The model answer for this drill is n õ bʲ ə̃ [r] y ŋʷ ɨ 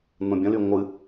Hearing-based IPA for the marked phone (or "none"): l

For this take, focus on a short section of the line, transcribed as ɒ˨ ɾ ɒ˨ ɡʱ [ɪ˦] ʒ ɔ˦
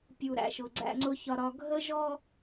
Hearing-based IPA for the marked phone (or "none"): ə˦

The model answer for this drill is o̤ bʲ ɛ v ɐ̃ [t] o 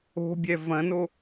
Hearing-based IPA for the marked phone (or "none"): n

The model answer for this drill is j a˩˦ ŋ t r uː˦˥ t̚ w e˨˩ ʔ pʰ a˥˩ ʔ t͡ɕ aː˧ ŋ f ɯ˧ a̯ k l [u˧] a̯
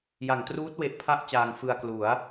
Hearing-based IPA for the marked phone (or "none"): u˩˦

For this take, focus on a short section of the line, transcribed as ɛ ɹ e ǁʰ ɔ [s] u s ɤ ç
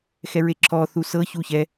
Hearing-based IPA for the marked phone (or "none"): θ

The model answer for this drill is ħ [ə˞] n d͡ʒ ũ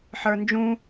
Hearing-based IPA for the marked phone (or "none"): ə˞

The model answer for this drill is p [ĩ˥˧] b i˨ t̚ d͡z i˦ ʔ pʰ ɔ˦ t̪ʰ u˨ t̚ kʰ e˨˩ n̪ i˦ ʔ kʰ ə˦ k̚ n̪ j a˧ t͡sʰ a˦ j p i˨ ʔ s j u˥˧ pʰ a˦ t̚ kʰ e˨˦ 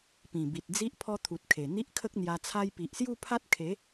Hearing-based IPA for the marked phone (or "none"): ĩ˨˩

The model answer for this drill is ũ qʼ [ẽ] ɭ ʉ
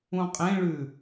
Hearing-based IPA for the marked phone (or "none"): ẽ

